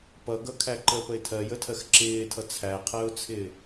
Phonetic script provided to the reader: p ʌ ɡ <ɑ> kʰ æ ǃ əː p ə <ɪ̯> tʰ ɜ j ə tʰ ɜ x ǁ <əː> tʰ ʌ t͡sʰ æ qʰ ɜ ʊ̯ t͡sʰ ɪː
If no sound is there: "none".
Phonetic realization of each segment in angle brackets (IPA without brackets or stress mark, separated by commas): ʌ, ɪ̯, ɪː